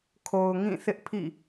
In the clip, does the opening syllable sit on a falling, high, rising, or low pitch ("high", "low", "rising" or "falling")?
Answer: low